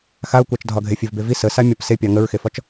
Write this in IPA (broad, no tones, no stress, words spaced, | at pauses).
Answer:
xaʊ̯kʷɑt͡ʃdʱɒɡʱe fʲevbevi səsa mʲɒpsepʲɑ ŋəɹxefɒt͡ʃ